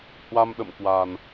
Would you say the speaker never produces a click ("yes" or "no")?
yes